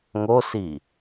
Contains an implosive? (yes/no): no